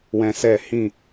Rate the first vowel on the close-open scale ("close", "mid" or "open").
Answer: mid